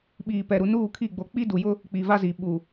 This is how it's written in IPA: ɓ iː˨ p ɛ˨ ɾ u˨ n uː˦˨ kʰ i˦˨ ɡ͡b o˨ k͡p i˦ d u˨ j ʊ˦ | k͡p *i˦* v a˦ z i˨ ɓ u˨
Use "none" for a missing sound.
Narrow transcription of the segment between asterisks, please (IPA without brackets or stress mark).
i˨